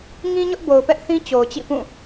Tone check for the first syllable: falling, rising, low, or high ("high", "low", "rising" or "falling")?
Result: high